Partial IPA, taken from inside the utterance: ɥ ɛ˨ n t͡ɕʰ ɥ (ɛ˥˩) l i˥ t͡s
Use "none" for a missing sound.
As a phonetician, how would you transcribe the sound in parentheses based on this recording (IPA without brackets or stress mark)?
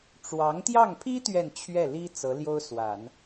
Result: ɛ˥˩